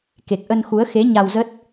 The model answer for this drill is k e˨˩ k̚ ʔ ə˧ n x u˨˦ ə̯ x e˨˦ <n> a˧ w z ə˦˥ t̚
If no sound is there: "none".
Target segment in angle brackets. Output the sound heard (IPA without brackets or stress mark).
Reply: ɲ